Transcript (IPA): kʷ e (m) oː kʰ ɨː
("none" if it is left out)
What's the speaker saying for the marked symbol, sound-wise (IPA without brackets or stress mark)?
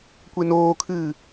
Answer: n